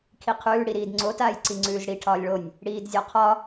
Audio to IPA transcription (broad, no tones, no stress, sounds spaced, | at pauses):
kʰ i qʰ ʉː ɽ i ɾ iː d ŋ͡ǀ o t aː j ǀ i ŋ͡ǀ ʉː z ɽ i ʈʰ ɒː lʲ ɭ o nʲ | ɽ iː d zʲ ɒ qʰ ɒ